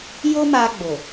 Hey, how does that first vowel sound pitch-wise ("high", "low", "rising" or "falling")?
high